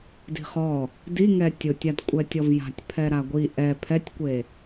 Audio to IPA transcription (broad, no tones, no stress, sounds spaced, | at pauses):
d i̤ χ ɔ | d i ŋ ɛ tʲ ʊ tʲ a d kʷʼ ɛ tʲ ɔ v j a̤ tʲ pʰ ɛ ɾ a ɡʷ i ʔ ɛ pʰ ɛ tʲ kʷ e